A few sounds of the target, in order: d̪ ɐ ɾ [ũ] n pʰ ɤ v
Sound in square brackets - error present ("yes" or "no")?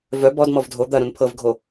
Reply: no